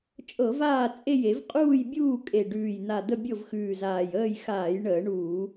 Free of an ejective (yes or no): no